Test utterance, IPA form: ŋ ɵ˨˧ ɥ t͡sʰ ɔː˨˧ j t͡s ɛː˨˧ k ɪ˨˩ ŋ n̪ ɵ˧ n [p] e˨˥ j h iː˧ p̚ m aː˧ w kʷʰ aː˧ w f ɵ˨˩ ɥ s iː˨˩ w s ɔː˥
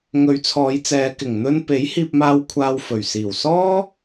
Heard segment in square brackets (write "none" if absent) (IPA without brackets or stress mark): p